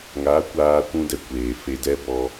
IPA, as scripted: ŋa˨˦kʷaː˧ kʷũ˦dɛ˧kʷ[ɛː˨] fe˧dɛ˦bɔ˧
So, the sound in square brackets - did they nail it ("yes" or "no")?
no